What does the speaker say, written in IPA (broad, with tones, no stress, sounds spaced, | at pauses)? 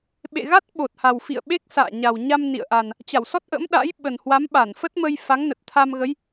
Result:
ɓ ḛ˧˨ ɣ a˦˥ t̚ ɓ o˨˩ t̚ h a˨˩ w f ḭ˧˨ ə̯ ɓ e˦˥ k̚ s a̰ː˧˨ ɲ a˨˩ w ɲ a˧ m n ḭ˧˨ ə̯ ʔ a˨˩ n | t͡ɕ a˧˩ w s ɔ˦˥ t̚ ʔ ə̰˧˥ m ɗ a̰˧˥ j ɓ ə˨˩ n h w a˨˦ m ɓ a˧˩ n f ə˦˥ t̚ m ə˧ j f a˨˦ ŋ n ə˨˩ t̚ t̪ʰ a˧ m ɣ ə˨˦ j